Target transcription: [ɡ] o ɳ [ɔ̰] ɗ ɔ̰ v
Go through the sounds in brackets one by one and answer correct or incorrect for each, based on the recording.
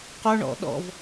incorrect, correct

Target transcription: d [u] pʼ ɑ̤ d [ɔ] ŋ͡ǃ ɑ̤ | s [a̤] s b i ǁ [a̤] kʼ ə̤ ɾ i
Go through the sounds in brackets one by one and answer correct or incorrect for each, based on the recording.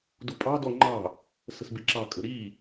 correct, correct, incorrect, incorrect

